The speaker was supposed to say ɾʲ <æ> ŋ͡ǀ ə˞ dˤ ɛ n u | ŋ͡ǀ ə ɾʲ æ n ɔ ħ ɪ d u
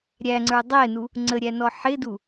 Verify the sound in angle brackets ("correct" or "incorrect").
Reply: correct